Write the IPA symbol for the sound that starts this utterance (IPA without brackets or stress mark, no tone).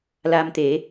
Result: l